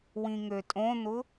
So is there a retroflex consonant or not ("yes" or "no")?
no